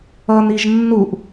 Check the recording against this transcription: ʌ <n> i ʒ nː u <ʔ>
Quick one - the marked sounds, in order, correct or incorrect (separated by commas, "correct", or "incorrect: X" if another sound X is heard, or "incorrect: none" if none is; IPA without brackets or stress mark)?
correct, correct